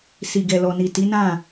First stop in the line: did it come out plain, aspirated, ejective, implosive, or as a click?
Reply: plain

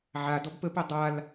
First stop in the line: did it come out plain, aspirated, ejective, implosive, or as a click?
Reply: plain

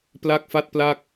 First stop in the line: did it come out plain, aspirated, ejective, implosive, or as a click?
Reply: plain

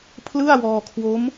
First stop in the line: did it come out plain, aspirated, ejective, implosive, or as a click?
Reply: aspirated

